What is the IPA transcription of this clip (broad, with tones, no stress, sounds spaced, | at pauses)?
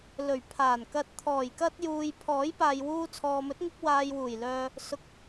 l ɵ˨˩ ɥ pʰ aː˨˩ n k ɐ˨ t̚ t̪ʰ ɔː˨˩ j k ɐ˧ t̚ j uː˨ j pʰ ɔː˨˥ j p aː˨ j w uː˧ t͡sʰ ɔː˨ m ɵ˨˥ t̚ ŋ ɪ˧ k̚ w aː˨ j w uː˨˩ j l œː˨ | s ʊ˨˥ k̚